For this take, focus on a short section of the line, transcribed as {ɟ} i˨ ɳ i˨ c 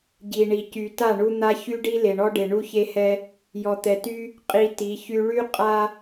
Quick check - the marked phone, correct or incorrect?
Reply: correct